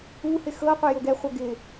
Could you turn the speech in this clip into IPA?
u h ɪ x ɤ qʷ ɪ j o ɡ ɛ χʷ ɤ ɡ ɪ

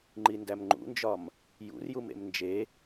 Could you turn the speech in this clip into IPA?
ŋ͡ǃ i n d æ m ŋ͡ǃ ṵ n d͡ʒ ɒ m | j ṵ r j u m ḛ m n d͡ʒ e

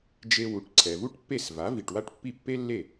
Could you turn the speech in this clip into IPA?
d͡ʒ e˧ w u˩˥ ʈ ǀʰ ɛ˩ v u˥ ʈ pː e˥˩ s v a˩˥ v i˩ ʈ w a˥ ʈ pː i˥˩ pː e˥ lː e˥˩

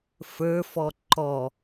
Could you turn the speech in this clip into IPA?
f ə˞ f ɔ ǃ ɔ

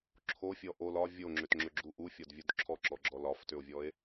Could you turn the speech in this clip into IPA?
ǁʰ o fʲ ɔ ʔ o l ɒ vʲ o ŋ͡ǁ ʏ t ŋ͡ǁ ʏ ɡ͡ǁ u ʔ u fʲ ɒ d vʲ u d ǁʰ ɔ ǁ ɔ ɡ͡ǁ ɔ l ɒ f t ʏ o̯ vʲ ɔ e̯

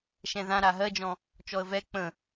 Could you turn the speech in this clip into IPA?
ʃ ɛ̃ ð ã ɾ a ɦ ɜ d͡ʒ ɔ̃ | t͡ʃ ɔ ə̯ v ɛ k͡p ə̃

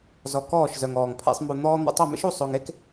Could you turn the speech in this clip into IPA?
z ɔ˧ k ɔː˥˧ ʃ z œ˧ ŋ ɔː˧ ŋ pʰ ḛ˥ sˤ m u˧ n̪ ɔː˥ n̪ o̰˧ tˤ o˥˧ m ḛ˥ ʃ u˥˧ sˤ o˧ ŋ e˥ k

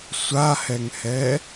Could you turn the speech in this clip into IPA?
sʷ a h ɛ ŋ h ɛ

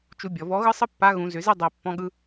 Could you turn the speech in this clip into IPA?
t͡ʃ u˧ bʲ ɔ˩ v ɔ˧˥ ɣ ɯ˥ sˤ ɯ˥ pː a˧˥ ɣ ũ˩˧ z ʏ˩˧ z i˧ dˤ i˩ pː ɔ̃˧ ɠ ɯ˧

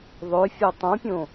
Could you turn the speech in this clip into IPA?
ðˤ ø fʲ o tˤ õ pʲ õ

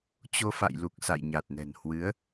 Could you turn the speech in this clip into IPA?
t͡ɕ o˧ f a̰˧˨ j l u˨˩ k̚ s a̰˧˨ j ɲ a˨˩ t̚ n ɛ̤˨˩ n h w ɨ˨˦ ə̯

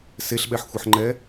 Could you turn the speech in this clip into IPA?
s e ɬ ɓ ɛ ħ xʷ ʌ ħ ŋ͡ǃ ɛ

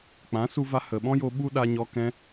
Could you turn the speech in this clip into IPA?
k͡p ã˨˦ s u˧ v a˧ h ə˨ ɓ ɔ̃˦ j o˧ ɓ u˦ ɗ a˧ ɲ ɔ˧ k ɛ̃˧

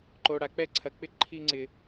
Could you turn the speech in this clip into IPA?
ǃ o˨ ɽ a˨ k͡p ɛ˦ ǀʰ ɐ˨ k͡p ɪ˦ ǃʰ i˧ ŋ͡ǀ ɪ˨

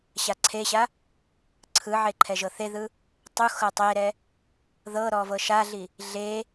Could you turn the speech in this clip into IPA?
ɕ a ǀʰ e ɕ a | ǀʰ ɯ ʕ e ǃʰ ɛ ʒ ɤ θ e ð ɯ | tˤ u x ɤ tˤ e ɾ ɛ | ð ɤ ɾ ɔ v ɤ ʃ a ɮ i | ɮ e

